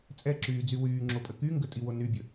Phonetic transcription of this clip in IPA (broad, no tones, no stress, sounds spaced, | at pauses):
t͡sʼ ɛ ǁ yː d͡z y w yː ŋ͡ǁ o pʼ ə k y ŋ ɡ ə tʼ i w o n y bʲ ə